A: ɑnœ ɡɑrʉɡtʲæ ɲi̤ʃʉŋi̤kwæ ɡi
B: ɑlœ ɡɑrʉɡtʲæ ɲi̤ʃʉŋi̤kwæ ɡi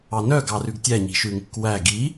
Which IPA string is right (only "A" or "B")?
A